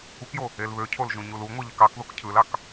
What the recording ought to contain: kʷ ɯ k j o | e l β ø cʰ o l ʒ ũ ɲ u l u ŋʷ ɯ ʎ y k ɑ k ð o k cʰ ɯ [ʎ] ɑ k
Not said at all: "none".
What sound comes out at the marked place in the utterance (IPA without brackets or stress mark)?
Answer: l